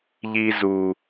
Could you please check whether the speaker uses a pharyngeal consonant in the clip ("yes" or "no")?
no